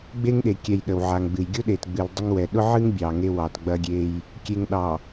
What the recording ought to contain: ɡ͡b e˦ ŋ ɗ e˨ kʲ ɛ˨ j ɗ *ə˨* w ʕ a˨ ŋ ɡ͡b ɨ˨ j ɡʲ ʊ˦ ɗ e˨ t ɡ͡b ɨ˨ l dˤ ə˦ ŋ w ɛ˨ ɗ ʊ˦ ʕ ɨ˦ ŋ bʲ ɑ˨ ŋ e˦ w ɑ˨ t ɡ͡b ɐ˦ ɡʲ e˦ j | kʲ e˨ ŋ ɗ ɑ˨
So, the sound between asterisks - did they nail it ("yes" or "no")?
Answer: yes